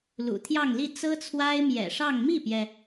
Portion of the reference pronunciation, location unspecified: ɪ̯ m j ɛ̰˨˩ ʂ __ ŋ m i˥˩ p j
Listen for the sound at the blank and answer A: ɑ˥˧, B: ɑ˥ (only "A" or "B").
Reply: A